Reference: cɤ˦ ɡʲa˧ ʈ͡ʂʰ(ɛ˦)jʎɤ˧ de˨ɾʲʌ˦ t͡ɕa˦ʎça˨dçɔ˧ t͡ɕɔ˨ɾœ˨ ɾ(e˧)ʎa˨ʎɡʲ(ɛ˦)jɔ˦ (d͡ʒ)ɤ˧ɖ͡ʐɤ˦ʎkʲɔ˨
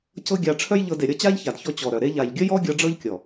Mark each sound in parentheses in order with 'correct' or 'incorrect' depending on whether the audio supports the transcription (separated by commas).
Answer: incorrect, correct, incorrect, incorrect